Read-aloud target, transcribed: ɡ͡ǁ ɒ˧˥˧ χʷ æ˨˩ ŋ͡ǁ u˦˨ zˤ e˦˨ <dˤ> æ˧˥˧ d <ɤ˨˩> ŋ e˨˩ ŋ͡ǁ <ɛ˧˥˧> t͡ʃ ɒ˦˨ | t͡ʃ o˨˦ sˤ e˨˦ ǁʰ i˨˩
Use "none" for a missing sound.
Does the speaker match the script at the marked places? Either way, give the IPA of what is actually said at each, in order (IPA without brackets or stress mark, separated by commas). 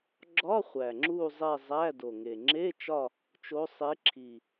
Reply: zˤ, o˨˩, e˧˥˧